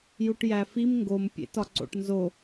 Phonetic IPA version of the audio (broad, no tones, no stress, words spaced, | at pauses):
juʈjæfim ŋɡompʲḛ tɒǀo̰ʈnzo